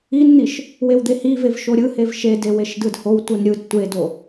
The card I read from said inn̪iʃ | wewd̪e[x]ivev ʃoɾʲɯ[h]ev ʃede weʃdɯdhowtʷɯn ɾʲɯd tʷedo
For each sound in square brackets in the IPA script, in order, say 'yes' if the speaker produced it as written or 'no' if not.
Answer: no, yes

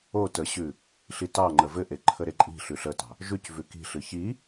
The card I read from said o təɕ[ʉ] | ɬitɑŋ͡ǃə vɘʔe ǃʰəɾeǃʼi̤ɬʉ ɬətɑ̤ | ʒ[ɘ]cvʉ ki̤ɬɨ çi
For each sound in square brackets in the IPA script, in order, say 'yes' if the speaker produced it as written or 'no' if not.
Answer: yes, no

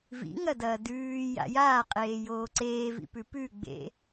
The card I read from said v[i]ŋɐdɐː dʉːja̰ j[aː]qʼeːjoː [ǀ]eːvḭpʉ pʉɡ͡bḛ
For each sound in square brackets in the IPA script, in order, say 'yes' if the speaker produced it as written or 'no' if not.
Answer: no, yes, yes

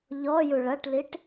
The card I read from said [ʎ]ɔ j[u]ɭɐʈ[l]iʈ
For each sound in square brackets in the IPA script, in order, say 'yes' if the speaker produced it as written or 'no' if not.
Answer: yes, yes, yes

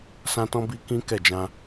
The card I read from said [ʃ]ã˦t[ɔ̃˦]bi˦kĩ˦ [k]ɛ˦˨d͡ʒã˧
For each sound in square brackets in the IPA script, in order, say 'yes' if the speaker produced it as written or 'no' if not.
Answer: no, yes, yes

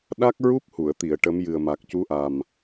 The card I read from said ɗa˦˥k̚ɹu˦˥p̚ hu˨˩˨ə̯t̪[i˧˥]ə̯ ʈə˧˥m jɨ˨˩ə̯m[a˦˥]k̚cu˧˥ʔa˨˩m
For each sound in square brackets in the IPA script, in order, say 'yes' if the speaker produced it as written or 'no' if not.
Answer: no, no

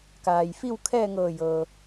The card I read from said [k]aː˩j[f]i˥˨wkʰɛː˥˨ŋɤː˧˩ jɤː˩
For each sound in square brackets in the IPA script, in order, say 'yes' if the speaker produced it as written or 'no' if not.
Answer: yes, yes

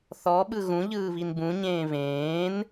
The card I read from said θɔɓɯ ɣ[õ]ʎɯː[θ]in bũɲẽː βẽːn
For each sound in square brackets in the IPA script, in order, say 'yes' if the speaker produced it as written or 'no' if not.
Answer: no, no

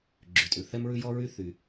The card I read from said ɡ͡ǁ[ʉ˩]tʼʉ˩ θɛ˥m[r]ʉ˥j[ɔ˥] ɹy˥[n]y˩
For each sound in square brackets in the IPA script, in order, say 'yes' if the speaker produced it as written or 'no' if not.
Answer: yes, no, yes, no

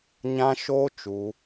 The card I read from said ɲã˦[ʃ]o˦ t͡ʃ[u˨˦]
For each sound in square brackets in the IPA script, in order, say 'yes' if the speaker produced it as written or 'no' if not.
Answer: yes, yes

